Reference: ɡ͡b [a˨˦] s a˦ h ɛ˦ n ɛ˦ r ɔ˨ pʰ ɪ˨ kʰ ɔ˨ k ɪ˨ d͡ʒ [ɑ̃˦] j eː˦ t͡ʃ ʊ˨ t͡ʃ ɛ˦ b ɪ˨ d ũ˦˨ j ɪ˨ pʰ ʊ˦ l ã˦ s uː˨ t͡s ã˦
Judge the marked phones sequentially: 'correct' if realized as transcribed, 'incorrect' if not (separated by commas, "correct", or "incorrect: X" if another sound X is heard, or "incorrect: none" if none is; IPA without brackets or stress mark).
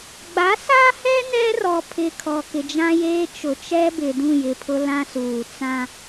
correct, incorrect: ã˦